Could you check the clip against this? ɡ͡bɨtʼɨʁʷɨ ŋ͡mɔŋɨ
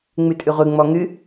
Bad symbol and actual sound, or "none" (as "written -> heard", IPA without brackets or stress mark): ɡ͡b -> ŋ͡m